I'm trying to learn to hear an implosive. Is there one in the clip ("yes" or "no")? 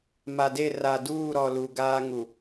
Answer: no